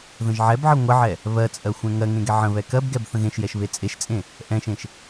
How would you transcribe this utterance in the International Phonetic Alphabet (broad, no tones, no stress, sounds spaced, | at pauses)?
ð ə̃ ʒ ʕ ɛ b ʕ ə ŋʷ ə ʕ ɛ | β ɜ t͡sʼ ɜ xʷ ɛ̃ ŋ ɜ ŋ ẽ ɡ ɛ ʕ ə̃ β ɛ k ɜ b ɡ ɛ b θ ə̃ ɣ ẽ ʃ j ɛ ʃ β e t͡sʼ e ʃ t͡sʼ ẽ | ʔ ɛ̃ ʃ ẽ ʃ